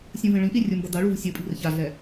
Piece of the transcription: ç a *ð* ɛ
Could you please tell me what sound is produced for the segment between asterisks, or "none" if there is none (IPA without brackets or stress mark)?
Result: ɮ